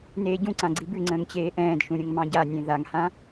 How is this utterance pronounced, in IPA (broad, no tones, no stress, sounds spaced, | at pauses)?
n eː ɟ ũ ǀ ã ɡ͡ǀ i b ʉ ŋ͡ǀ ə̃ː ŋ t͡ɕ eː ʔ ɛ̃ː d ʃ ũ ɾʲ ə̃ ŋ m ɑ̃ ɟ a nʲ ẽ ð a ŋ h ã